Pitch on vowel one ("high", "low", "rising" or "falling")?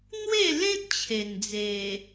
falling